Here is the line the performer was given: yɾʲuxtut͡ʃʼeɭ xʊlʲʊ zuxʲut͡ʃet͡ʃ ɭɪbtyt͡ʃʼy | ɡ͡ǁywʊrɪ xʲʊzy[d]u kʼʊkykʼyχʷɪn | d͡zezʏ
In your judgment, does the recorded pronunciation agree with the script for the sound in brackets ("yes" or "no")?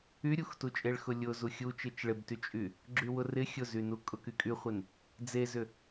no